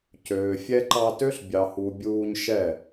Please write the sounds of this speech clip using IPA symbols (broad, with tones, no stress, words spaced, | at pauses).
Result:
cøː˨fʲɛ˦ ǃɑ˧tø˦ɬ bʲɑ˨hu˨ bʲuː˧ɲ ʃɛ˦˨